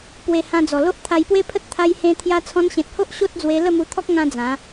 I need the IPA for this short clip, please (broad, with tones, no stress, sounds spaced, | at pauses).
p w e˨˩ h ã˧ d͡z ɔ˨˩ l o˦ ʔ t̪ʰ a˧ j p w e˦ pʰ ə˦ t̚ t̪ʰ a˦ j h ẽ˦ t̪ʰ j a˧ t͡sʰ ɔ̃˧ n ɕ ẽ˨ t̚ h o˦ ʔ ɕ o˦ t̚ d͡z w e˧ l ə˥˧ m u˧ t̪ʰ ɔ˦ k̚ ŋ ã˧ d͡z ã˨˦